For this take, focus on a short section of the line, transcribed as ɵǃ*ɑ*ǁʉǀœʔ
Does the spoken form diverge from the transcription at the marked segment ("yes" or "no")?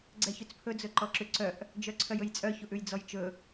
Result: yes